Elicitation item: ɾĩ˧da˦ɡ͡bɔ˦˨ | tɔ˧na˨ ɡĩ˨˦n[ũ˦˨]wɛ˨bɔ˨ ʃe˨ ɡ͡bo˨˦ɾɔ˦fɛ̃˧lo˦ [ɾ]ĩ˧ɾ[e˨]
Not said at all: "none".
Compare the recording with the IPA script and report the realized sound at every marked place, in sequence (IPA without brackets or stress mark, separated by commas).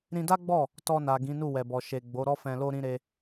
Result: u˦˨, ɾ, e˧